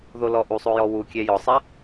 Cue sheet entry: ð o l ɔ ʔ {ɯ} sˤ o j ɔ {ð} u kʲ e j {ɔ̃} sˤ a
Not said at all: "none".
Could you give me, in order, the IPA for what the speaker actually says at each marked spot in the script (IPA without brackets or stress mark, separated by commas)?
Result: u, w, ɔ